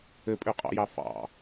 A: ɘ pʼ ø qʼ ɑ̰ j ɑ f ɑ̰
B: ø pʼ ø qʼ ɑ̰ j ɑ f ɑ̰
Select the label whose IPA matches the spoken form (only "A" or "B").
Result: A